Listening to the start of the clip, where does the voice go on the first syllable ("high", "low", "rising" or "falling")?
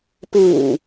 low